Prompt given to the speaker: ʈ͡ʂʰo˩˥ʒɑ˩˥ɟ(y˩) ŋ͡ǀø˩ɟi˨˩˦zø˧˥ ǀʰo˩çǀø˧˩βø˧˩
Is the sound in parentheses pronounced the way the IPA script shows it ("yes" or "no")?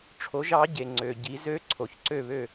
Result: no